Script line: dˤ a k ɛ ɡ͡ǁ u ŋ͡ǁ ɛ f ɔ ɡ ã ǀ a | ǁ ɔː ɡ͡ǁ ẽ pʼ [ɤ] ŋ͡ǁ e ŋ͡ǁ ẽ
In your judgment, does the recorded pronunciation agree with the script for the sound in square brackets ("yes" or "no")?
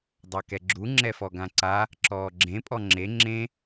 no